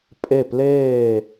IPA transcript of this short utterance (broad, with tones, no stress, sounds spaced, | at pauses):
pʼ e˥˩ p l eː˥˩